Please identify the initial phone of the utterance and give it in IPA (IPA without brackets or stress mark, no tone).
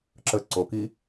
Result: ǁ